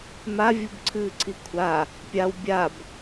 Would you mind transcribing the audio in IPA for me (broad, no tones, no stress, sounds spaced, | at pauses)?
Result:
m a vʲ u b ǀʰ ɨː ǀʰ i kʷʰ a | pʲ a w bʲ a b